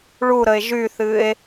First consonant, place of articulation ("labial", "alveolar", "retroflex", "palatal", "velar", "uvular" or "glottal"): retroflex